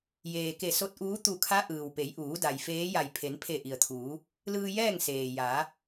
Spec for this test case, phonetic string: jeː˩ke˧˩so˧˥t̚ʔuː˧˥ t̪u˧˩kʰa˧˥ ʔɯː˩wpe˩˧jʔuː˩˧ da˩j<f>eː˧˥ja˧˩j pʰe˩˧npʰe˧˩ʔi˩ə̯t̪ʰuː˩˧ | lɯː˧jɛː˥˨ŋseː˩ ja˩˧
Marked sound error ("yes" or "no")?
no